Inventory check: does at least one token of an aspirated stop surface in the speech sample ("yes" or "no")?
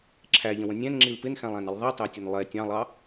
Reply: yes